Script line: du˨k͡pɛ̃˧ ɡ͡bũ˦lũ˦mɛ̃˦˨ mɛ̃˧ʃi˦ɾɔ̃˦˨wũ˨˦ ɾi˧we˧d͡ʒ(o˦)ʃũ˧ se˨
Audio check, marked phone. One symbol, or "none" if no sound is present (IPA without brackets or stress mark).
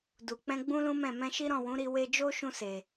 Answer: o˦